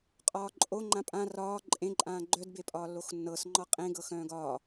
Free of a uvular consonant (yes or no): no